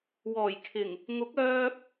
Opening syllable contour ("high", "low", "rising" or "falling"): low